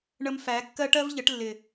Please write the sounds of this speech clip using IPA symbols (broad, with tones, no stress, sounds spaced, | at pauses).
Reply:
ɳ ə˧ m f æ˨˦ kː ɜ˦ ʈ ɜ˦ v ʎ ə˨˦ ʈ lː ɪ˨